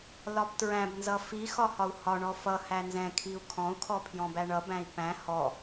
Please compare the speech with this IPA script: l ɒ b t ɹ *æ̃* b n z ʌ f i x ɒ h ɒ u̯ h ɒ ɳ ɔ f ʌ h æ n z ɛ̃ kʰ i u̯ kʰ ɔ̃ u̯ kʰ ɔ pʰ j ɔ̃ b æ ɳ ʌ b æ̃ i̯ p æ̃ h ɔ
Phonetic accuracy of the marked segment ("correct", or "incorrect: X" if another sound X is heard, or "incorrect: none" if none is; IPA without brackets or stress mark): correct